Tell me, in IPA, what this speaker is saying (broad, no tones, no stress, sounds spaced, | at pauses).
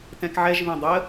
t ɛ̃ k ʕ ɛ ʒ β ẽ dˤ ə